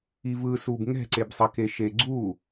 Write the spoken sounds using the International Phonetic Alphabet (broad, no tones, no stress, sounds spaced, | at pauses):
i v ɯ s u b ŋ ɛ̤ ǀ e b sˤ ʌ k e ʃ e ɡ͡ǀ u